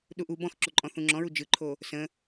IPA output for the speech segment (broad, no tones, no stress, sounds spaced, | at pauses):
ɗ u ʔ u b ɔ̃ x ǁ o ǃʼ ɔ̃ θ ũ ŋ͡ǁ ɔ̃ ɹ u d͡ʒ ɯ ǃʰ o | s ə̃